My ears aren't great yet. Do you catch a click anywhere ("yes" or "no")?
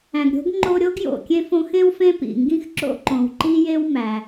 yes